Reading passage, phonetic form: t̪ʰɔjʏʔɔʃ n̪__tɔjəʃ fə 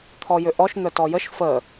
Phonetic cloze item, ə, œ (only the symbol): œ